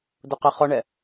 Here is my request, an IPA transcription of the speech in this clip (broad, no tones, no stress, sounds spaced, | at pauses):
d ʊ q ə χ ɔ ɳ ɛ